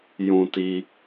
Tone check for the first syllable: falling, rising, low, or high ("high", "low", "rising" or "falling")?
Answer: low